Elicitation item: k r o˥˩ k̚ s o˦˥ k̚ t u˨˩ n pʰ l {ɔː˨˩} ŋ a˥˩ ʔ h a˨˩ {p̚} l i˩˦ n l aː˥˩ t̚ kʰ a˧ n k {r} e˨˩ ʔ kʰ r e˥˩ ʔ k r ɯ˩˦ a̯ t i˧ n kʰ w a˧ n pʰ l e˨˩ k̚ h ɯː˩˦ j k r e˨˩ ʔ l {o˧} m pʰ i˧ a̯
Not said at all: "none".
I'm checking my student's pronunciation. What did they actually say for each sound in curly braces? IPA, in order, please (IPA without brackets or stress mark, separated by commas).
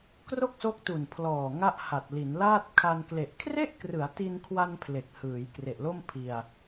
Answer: ɔː˨˩, t̚, l, o˥˩